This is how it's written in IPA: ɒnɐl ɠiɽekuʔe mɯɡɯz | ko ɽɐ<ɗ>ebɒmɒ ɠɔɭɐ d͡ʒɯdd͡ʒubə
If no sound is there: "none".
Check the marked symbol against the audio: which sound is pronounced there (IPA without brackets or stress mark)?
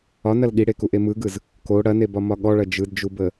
n